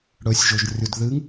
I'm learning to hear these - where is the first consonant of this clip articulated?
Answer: retroflex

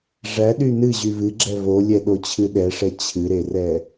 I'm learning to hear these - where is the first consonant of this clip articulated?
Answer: retroflex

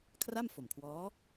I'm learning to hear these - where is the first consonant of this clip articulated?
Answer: velum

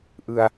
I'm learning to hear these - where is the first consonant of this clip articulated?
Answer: throat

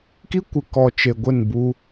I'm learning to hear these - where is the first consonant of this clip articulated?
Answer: velum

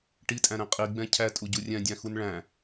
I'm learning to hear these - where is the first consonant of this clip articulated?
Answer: retroflex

